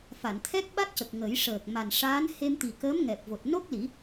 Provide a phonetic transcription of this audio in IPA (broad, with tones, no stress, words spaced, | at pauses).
fa˨˩˨nt̪ʰɛ˦˥k̚ɓa˦˥t̚cə˨˩k̚ ŋə˨˩˦jʂəː˨˩k̚ ma˨˩nʂaː˧˥n he˧mt̪i˨˩ kəː˧˥mŋɛ˨˩p̚vo˨˩t̚ no˦˥k̚li˨˩˦